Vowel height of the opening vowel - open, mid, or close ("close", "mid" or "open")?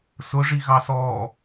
close